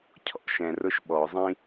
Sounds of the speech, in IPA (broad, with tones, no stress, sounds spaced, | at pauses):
cʰ ɔ̰˥ ʃ ɛ̃˨ r ʊ˦ ʃ ɓ ɔ˩ zˤ ĩ˥